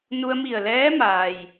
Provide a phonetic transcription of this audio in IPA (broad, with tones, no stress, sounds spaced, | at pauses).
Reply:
n u˧ ə̯ m i˧˩ ə̯ l ɛː˧˥ m aː˩ j